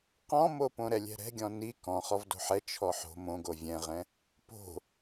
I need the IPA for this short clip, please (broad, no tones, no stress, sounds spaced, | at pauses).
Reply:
q ɔ̃ m o p õ ɾ ɛ lʲ ɛ̤ ɾ ɛ̤ ɡʲ ɔ̃ n i k ɔ̃ χ ɔ v d o̤ ħ ɛ t͡ʃʰ ɔ ħ o̤ m õ ɡ o vʲ ɛ̃ ʁ ɛ̃ | p o̤